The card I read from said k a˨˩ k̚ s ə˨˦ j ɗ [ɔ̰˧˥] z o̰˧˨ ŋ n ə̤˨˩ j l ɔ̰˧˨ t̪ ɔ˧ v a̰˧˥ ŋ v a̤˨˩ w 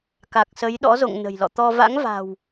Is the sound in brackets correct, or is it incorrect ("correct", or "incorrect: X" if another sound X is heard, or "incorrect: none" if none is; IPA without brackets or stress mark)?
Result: correct